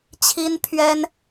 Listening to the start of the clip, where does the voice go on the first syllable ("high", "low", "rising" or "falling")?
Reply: high